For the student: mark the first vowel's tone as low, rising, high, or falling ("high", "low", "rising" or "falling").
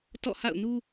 falling